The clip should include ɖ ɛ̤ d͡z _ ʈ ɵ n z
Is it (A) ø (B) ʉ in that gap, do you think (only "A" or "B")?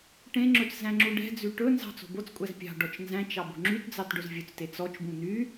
B